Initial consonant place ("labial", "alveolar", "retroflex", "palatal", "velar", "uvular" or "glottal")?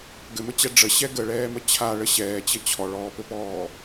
velar